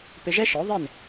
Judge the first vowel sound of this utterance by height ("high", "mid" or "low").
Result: high